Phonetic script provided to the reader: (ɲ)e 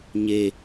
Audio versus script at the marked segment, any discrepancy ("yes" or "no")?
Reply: no